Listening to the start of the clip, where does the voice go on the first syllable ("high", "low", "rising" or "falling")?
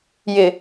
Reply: low